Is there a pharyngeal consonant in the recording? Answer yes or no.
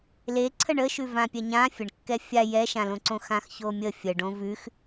no